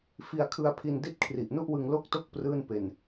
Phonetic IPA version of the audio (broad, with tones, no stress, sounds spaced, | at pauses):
f i˧ a̯ kʰ ɯ˧ a̯ pʰ i˧ n d i˥˩ t̚ kʰ r i˨˩ ʔ n u˥˩ ʔ w ɯ˧ ŋ l o˥˩ k̚ t o˥˩ k̚ p r ɯː˥˩ n p e˧ n